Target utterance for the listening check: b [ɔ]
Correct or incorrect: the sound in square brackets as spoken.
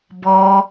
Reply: correct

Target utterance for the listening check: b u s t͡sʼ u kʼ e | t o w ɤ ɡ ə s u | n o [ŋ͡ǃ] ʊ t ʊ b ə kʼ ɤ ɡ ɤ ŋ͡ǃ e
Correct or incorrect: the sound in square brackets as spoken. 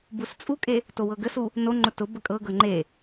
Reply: correct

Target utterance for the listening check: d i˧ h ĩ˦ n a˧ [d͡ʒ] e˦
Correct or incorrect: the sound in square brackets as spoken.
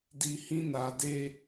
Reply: incorrect: d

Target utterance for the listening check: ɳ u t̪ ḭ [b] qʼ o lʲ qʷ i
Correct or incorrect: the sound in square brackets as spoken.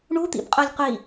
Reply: correct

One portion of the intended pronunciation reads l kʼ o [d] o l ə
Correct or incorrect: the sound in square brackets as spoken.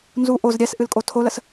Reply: incorrect: tʰ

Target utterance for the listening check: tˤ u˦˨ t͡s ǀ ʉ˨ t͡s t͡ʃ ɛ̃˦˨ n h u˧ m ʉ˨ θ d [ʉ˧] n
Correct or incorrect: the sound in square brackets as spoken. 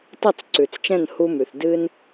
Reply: incorrect: ɨ˧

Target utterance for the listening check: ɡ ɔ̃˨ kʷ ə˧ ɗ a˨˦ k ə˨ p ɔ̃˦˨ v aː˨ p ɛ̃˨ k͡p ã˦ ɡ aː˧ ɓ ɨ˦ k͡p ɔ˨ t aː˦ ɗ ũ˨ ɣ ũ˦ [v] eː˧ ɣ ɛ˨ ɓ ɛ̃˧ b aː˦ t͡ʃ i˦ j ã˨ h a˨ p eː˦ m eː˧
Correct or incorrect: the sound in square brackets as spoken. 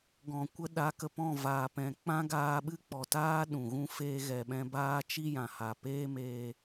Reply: incorrect: f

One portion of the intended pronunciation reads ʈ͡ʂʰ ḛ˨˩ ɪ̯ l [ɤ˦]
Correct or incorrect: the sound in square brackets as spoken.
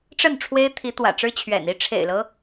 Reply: correct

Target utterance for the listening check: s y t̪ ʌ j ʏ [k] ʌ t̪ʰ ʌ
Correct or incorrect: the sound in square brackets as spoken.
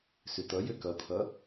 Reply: correct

